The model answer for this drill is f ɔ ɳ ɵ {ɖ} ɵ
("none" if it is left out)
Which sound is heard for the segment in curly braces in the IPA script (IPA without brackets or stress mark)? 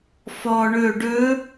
ɖ